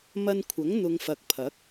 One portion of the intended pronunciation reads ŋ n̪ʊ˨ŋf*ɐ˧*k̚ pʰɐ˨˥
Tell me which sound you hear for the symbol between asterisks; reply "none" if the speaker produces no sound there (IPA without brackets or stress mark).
ɐ˨